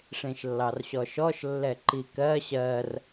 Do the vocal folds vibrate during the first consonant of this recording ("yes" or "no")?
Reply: no